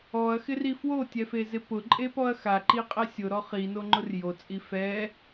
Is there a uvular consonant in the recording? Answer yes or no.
yes